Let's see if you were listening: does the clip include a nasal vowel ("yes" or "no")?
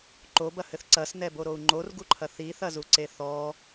no